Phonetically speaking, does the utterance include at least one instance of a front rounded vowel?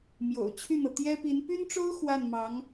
yes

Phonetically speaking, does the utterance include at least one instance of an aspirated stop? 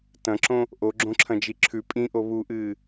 yes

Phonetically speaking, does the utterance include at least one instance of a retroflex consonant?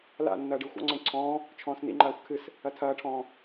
yes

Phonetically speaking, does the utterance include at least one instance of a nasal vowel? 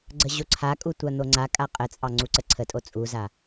no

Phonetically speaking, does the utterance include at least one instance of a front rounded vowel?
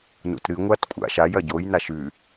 no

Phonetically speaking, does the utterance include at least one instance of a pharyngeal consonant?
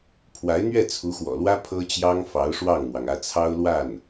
no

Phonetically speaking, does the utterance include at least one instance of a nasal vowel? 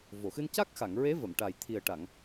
no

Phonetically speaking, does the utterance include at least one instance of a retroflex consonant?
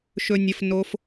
no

